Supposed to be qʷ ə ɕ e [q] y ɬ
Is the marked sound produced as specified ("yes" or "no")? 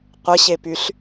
no